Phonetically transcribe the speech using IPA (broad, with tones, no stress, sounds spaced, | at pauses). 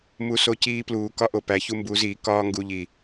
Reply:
m u˧ s o˧ c iː˧ p l uː˨ k ɒ˦ ʔ o˨ p æ˨˦ ç u˧ m b u˨˦ z iː˨ k ɒː˦ ŋ ɡ u˧ ʎ i˨